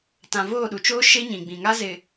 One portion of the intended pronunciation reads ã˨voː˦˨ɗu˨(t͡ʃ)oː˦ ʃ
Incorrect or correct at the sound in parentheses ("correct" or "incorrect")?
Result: correct